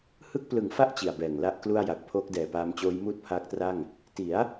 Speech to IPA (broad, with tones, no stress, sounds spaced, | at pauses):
h ɯ˥˩ k̚ p l ɯ˨˩ ŋ f a˥˩ ʔ t͡ɕ i˨˩ a̯ b ɛː˨˩ ŋ l a˦˥ ʔ k l u˥˩ a̯ j a˨˩ k̚ pʰ oː˦˥ k̚ d ɛː˨˩ p aː˧ m t͡ɕ oː˦˥ j m uː˥˩ t̚ pʰ aː˦˥ k̚ t r a˥˩ ŋ | t i˩˦ a̯